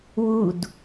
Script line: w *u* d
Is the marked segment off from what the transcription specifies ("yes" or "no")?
no